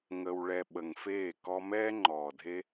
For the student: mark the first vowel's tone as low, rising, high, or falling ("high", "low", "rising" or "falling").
low